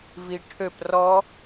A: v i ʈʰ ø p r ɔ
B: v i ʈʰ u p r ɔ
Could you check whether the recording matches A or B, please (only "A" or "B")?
A